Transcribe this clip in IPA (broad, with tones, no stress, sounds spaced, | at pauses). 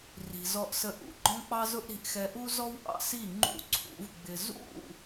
r i̤˨ z ɔ˧ ʔ s ə˧ ʔ ṵ˨ ɡ͡ǃ ɔ̃˦ k͡p ɑ˦ z ʊ˦ ʔ ɾ i̤˧ ʔ x ɛ˧ ʔ u˦ z ɔ˦ w ʔ ɑ̰˧ s i˦˨ ŋ͡ǃ ṵ˦ ǀʰ ṵ˨˦ v ɡ͡b ɪ˧ z ṵ˦˨